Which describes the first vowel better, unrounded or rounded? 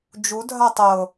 rounded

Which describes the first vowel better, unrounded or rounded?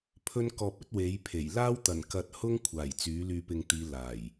rounded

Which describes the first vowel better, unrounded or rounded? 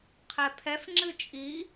unrounded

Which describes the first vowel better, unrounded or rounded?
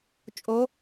rounded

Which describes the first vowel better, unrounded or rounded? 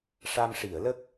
unrounded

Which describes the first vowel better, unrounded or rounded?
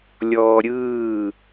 rounded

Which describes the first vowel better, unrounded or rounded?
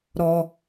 rounded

